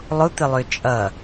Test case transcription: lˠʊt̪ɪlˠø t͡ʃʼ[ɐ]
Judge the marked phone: correct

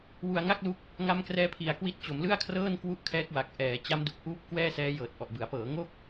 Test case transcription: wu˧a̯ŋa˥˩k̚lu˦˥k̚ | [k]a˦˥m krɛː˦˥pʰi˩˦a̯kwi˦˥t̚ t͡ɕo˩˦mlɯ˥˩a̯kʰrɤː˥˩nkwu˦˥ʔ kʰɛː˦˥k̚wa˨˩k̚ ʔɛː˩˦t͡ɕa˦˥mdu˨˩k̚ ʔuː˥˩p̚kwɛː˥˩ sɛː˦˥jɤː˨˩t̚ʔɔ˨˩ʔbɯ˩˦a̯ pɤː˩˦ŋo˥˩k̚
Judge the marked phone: incorrect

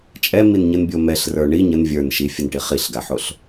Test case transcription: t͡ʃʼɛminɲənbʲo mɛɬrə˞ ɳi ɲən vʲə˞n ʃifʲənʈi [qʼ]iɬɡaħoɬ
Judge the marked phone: incorrect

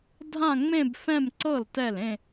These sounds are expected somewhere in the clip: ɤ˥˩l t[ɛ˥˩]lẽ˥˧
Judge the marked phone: correct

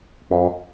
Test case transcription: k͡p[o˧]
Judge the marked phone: incorrect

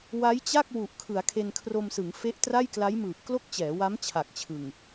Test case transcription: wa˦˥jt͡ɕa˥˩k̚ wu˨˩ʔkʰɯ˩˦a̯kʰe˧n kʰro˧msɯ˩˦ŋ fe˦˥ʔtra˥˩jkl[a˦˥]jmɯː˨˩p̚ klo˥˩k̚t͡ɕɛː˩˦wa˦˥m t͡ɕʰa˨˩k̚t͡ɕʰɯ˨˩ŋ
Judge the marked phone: correct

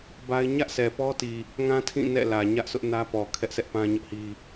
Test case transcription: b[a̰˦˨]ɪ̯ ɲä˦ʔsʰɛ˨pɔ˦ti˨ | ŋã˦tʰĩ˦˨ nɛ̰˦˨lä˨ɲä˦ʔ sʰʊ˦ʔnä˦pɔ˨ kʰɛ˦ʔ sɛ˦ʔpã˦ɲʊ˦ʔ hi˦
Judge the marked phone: incorrect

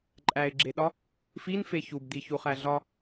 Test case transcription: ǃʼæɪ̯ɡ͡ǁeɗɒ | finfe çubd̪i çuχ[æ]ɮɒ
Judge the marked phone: correct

